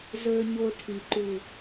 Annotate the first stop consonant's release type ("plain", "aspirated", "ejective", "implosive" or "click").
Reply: aspirated